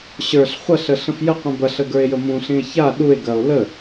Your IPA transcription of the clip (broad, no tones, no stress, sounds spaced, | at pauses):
ɕ ə˞ ɬ χʷ ɐ ɬ ə ɬ ə̃ f j ə qʷ ĩ b ɐ ɬ ə ɡ ə˞ e̯ j ə m ũ ɬ ĩ e̯ ç a ɗ u e̯ ɡ ɐ o̯ l ə